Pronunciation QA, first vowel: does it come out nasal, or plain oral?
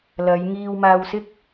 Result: oral